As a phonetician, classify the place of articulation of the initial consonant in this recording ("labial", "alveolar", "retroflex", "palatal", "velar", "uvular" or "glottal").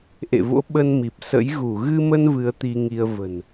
glottal